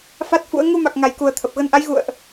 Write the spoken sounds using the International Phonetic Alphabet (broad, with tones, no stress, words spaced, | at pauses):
fa˦˥t̚fṵ˧˥ə̯ ŋu˧ma˨˩k̚ ŋa˨˩jku˨˩ə̯ t̪ʰə˨˩p̚ ɣə˧nʔa˨˦j ɣṵ˧˨ə̯ʔ